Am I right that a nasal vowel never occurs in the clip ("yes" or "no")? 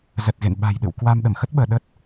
yes